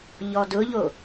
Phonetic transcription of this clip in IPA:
ʎ ɔ d ʊ ʎ o

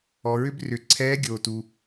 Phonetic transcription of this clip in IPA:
ɔ˩ ɹ ʏ˥ b r ʏ˩˧ ǀʰ ɛː˧˥ ɡʲ oː˩ t u˩

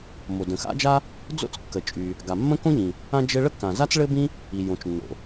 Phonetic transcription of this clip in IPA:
m o˩ d ə̃˩ x a̰˥ d͡ʒ a˥ | d͡z o̰˥ t͡s kː ə˩ t͡ʃʼ y˩ | ɡ a˩ mː ə̃˥ k õ˥ ʎ ĩ˩ | ã˥ d͡ʒ ɘ˥ ɭ ə˥ kː ã˩ z a˥ t͡s ɭ ɘ˥ b ĩ˥ | i˩ j õ˩ t͡ʃ nː o̰˩

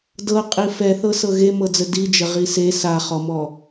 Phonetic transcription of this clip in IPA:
d ɤ qʼ i f ɛ θ ɤ s ɤ ɣ e m ɤ d͡z ə d i d͡ʒ ə ʁ i s e s a χ ɔ m ɔ

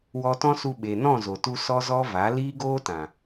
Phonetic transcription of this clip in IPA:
w ɔ˧ t ɔ̃˦ s u˧ ɓ e˨ n ɔ̃˦˨ z o˨ t u˧ s ɔ˦ z ɔ˦ v a˨˦ l iː˦ ɡ oː˦ t ã˨

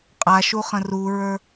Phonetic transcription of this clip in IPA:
qʼ a ʃ u χ ə̃ r u ɹ ə˞

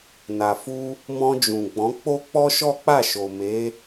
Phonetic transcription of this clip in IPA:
n a˨ f u˧ | m ɔ̃˧ d͡ʒ ũ˨ ɡ͡b ɔ̃˨˦ k͡p o˦ k͡p ɔ˦ ʃ ɔ˦ k͡p a˦˨ ʃ o˨ m e˨˦

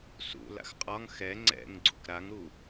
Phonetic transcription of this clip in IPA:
s ṵ l a̰ x qʼ ɒ ŋ x ɛ ŋ͡ǀ ɛ̰ ŋ ɡ͡ǀ ṵ k ɾ a ŋ ɾ u

